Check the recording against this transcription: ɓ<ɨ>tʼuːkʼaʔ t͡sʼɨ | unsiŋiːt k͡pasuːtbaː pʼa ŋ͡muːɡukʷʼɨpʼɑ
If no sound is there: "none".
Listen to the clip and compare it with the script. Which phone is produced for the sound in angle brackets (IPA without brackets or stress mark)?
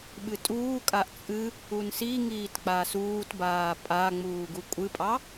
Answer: ɨ